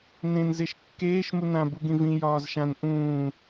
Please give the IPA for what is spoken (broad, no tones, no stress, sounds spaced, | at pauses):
n ẽ n z e ʃ kː eː ʃ m u n ã b u ɡ ĩ v ĩ j ɒː z ʃ ã n ʔ ũː